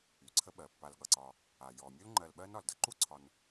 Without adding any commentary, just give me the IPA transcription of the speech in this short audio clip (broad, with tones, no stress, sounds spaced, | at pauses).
y˩ ǀʰ ə˦ ɓ ɜ˩ pː a˨ l ɠ ʌ˩ ǀ ɒ˨ | a˩ j ɔ˩ mʲ u˥ l ŋ͡ǃ ɜ˨ l ɓ ɜ˦ n ɒ˩ l d ʌ˨ ǃ u˥ ǀʰ ɒ˨ n